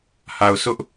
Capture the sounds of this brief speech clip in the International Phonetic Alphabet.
h a˨ ʊ̯ sʰ ʊ˦ ʔ

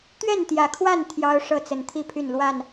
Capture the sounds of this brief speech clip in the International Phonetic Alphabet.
t̪ ɥ ɛ˥˨ n t̪ j ä˨˩ kʰ w a˥˨ n t̪ʰ j ɑ˦ ʊ̯ ʂ ɤ˥˨ t͡s ə˨˩ n t̪ʰ i˥˨ pʰ y˥˨ n l w a˥˨ n

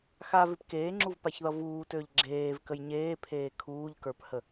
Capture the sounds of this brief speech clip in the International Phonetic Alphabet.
x a v ɪ p k eː ŋ͡ǁ u v p a ç ð ʌ v uː t ø ʎ ɡ͡ǁ eː v k ə j ɲ eː pʰ eː kʰ uː ʎ k ə˞ p h ə

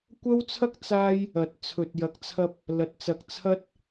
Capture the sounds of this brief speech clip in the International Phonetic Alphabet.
kʷ ɐ˥ w t͡sʰ ɐ˥ k̚ t͡s aː˧ j | ɐ˨ t̚ t͡sʰ ɵ˨ t̚ j ɐ˨ k̚ t͡sʰ ɐ˧ p̚ | l ɐ˨ t̚ t͡s ɐ˨ k̚ t͡sʰ ɐ˧ t̚

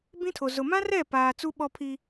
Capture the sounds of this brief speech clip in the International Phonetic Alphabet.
b ĩ˦ tʰ o˨ z ʊ˨ m ã˦ r ɛ˦˨ p aː˨ t͡s u˦ ɓ ɔ˦ pʰ i˦

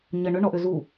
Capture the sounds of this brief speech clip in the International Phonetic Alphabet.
ɲ ə ɳ ʏ ɳ ɔ ʔ ʏ z u

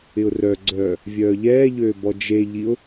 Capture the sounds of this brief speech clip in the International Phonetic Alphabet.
ɪ ʊ̯ r œ ɡ͡ǀ œː | vʲ œː ʎ ɛː ʎ øː b ɔ d͡ʒ e ʎ i ʊ̯

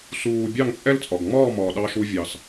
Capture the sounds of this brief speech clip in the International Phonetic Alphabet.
s uː˩ bʲ ɑ˥˩ ŋ t͡ʃʼ ɛ˥ l t͡sʼ ɒ˩ ɡ ŋ͡m ɒː˥˩ m ɒː˩ ɗ ɑ˧ ʃ u˧ vʲ ɑ˩ s

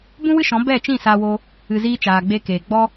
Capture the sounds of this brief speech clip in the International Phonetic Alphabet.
b ũ˦ w ɨ˦ ʃ ɔ̃˨˦ b ɛ˦˨ t͡ʃ ĩ˦˨ s aː˧ w o˧ | ɨ˧ z iː˦ t͡ʃ aː˨ ɡ͡b e˧ k eː˨ ɡ͡b ɔ˦

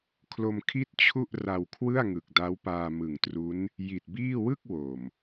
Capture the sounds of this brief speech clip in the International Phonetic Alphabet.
kʰ l o˧ m kʰ i˥˩ t̚ t͡ɕʰ u˥˩ ʔ r a˧ w kʰ w ɯ˥˩ a̯ ŋ ɯ˨˩ k̚ d a˦˥ w p aː˧ m ɯ˨˩ ŋ t r u˦˥ n | j i˨˩ t̚ b iː˥˩ w ɯ˥˩ k̚ w o˨˩ m

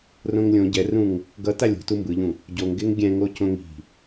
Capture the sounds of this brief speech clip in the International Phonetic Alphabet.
r õ ŋ lʲ õ ɟ ɛ r ũ ŋ | ɡ ʌ t a lʲ o̤ t u m b ɯ ʎ ũ | ɟ o ŋ ɡ e ŋ ɡʲ ɛ̃ ŋ o c õ ŋ i̤

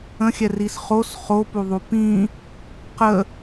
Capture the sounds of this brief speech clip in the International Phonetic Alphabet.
ə̃ xʲ ɛ r i s χ o s χ o p u ðˤ u p ĩ | q ə

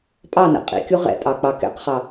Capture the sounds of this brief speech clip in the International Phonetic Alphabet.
pʼ ɑ n ɛ̰ qʼ ḭ kʲ u ʁ ɛ̰ tʼ ɑ k͡p ɑ k ɛ̰ q χ ɑ

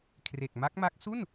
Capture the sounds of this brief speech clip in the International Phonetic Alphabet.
kʰ r e˨˩ k̚ m a˦˥ k̚ m a˦˥ k̚ s u˥˩ n

